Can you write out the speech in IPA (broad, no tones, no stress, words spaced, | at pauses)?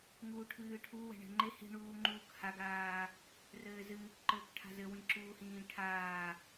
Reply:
ŋuːʈʰɨːʈʰu wɛ̤ɳɛ̤ŋ͡ǃe hi̤ɳuːŋ͡ǃuːk haɡaː | rɘːzɨːkǃɘːkʈʰa̤ zɘwĩǁuːhĩː ʈʰaː